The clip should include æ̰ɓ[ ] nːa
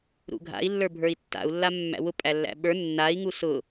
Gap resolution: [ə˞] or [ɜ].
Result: ə˞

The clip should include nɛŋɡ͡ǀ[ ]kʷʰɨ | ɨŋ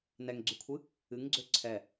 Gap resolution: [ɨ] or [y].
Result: y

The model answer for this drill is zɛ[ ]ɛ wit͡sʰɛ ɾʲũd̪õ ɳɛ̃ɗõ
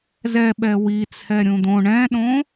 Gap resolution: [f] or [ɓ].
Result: ɓ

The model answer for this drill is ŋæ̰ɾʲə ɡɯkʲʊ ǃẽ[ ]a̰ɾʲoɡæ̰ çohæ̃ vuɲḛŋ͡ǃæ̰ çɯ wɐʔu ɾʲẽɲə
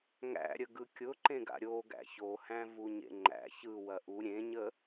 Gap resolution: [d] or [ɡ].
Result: ɡ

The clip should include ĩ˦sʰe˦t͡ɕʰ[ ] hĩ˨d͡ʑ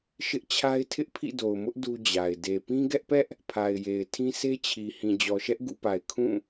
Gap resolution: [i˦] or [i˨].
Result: i˨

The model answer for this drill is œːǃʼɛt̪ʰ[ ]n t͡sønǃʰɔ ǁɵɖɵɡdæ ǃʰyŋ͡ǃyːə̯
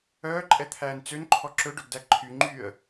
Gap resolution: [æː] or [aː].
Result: æː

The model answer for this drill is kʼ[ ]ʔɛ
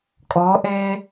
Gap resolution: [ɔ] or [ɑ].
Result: ɔ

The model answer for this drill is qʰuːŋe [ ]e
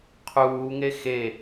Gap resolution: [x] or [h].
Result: x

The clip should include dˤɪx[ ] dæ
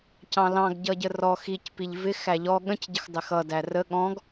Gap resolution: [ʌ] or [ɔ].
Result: ʌ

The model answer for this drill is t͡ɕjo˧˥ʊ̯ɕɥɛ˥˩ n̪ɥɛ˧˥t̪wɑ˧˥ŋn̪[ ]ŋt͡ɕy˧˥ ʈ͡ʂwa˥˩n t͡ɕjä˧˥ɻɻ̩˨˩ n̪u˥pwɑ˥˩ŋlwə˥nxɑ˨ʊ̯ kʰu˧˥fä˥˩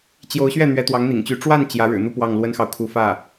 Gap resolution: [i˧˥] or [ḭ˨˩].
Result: ḭ˨˩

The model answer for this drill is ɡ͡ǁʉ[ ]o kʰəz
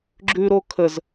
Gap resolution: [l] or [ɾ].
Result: ɾ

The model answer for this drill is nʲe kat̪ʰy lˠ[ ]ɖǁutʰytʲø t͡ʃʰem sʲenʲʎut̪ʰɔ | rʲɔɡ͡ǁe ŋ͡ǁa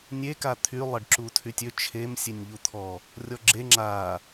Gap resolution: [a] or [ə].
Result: ə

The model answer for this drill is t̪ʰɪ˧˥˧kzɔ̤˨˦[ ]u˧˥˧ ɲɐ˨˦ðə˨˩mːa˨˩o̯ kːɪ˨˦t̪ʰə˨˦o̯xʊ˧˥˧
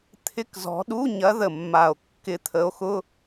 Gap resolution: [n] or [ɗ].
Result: ɗ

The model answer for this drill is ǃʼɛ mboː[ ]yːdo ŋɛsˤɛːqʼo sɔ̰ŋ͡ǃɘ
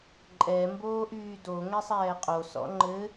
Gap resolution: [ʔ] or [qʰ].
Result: ʔ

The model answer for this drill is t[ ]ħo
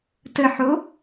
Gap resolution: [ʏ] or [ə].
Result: ə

